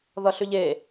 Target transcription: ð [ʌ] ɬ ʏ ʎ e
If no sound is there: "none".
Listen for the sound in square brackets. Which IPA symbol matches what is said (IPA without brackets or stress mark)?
ʌ